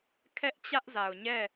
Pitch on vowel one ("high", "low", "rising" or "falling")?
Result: high